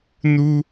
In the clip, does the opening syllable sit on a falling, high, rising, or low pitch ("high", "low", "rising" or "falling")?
high